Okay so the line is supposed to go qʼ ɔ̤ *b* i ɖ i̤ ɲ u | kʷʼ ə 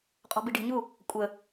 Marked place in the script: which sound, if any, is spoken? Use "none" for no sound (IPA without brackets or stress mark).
b